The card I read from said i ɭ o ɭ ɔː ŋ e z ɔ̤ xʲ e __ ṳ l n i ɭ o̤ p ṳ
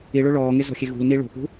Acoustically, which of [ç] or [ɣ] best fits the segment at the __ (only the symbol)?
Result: ɣ